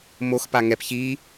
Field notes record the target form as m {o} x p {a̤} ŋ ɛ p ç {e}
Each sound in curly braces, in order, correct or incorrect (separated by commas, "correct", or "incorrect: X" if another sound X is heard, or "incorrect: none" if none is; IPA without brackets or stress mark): correct, incorrect: a, incorrect: i